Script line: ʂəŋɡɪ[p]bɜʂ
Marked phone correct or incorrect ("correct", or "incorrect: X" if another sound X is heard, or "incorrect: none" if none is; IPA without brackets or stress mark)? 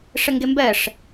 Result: incorrect: m